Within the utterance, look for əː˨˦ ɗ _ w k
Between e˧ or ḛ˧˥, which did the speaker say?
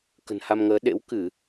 ḛ˧˥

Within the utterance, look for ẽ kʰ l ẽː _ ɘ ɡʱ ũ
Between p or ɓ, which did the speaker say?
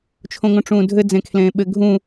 ɓ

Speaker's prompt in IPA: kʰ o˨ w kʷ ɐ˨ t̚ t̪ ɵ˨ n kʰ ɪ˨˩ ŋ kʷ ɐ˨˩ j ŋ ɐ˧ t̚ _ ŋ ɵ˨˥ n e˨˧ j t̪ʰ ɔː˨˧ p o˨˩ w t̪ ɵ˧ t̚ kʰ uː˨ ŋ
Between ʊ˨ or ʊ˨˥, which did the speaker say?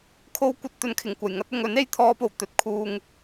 ʊ˨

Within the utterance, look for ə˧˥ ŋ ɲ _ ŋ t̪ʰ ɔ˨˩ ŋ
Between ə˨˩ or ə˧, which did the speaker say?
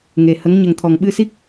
ə˨˩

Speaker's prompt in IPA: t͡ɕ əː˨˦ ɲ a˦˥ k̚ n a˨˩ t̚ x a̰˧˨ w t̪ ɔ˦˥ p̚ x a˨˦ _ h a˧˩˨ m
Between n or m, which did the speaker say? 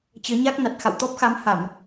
m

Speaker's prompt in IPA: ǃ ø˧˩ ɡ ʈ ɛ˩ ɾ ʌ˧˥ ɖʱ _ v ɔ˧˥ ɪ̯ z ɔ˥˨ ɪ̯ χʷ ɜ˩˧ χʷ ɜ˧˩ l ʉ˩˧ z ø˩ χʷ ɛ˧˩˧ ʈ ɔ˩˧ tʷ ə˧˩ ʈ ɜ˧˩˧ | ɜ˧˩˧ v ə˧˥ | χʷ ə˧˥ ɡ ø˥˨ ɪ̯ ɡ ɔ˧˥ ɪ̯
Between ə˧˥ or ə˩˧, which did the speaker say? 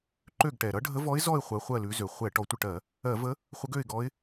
ə˧˥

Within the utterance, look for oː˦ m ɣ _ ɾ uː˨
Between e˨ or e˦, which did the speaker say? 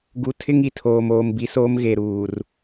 e˨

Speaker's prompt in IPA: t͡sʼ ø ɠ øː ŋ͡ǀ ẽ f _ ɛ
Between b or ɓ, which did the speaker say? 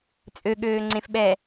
ɓ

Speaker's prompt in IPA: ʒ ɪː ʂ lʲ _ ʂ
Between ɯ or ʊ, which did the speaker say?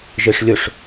ʊ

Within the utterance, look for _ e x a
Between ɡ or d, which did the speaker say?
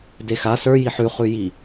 d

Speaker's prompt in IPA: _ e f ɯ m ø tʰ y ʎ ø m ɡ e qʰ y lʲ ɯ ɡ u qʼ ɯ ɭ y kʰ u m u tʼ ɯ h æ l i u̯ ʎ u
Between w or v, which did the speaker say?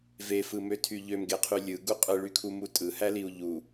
v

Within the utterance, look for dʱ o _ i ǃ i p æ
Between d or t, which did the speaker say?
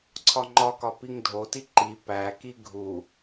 t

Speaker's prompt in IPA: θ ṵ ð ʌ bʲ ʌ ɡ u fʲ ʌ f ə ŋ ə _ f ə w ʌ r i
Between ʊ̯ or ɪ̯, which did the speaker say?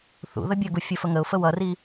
ʊ̯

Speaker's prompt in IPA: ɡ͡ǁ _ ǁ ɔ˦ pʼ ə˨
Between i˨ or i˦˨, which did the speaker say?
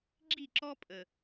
i˦˨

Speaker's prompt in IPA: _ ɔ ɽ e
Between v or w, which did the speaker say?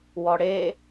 w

